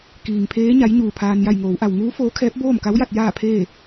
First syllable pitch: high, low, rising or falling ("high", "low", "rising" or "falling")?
low